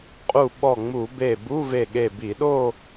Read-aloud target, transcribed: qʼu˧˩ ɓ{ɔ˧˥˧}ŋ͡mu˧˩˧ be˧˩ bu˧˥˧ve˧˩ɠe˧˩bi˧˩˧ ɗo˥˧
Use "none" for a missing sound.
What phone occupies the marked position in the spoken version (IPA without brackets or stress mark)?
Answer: ɔ˧˩